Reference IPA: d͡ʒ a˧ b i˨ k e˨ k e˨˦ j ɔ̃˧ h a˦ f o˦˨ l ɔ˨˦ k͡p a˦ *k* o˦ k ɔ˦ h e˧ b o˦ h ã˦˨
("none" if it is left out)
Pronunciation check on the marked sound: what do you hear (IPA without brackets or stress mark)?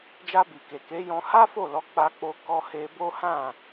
k͡p